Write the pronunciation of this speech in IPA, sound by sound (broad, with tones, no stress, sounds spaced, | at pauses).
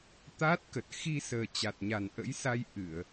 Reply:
t̪ aː˦˥ t̚ k ə˨˩ t̚ x i˧ s əː˨˩ t͡ɕ a˨˩ t̚ ɲ a˨˩ n ʔ ə̰˧˥ j s a˧ j ʔ ɨ˧˩˨ ə̯